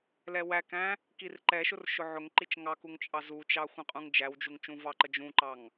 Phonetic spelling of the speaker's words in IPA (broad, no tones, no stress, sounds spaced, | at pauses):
l ɛ w æ k æ̃ | k i r ǃ ɛ ʃ ʊ r ʃ ʊ ʕ ʊ ŋ ǃ i t͡ʃ ŋ ɑ k u ŋ t͡ʃʼ ɑ z u t͡ʃ ɑ xʷ ə̃ qʼ ũ ŋ d͡ʒ æ w d͡ʒ u ŋ t͡ʃ ũ v ɑ ǃ ə d͡ʒ ũ ǃ ɑ ŋ